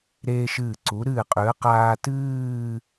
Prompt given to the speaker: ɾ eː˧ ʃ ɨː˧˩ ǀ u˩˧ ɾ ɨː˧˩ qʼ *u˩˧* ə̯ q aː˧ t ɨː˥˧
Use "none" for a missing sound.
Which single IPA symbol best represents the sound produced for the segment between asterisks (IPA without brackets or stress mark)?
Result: ʉ˩˧